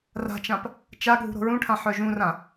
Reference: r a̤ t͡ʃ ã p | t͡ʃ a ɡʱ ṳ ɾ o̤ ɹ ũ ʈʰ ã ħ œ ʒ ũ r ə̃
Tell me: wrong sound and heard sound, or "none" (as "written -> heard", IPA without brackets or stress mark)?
ə̃ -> ã